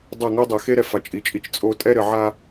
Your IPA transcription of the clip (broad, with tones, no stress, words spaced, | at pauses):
dˤɐ˦˨ ŋo˦dˤɛ˨xe˦ɾɛ˨ fa˨t͡ʃʼi˨t͡ʃʼi˦t͡ʃ t͡sʼo˦ tʼɛ˦ɾɘ˨ʕa˦